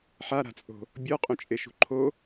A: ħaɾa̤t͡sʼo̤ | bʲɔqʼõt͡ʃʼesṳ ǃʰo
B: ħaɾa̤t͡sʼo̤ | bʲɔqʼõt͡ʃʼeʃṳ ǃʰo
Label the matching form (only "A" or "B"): B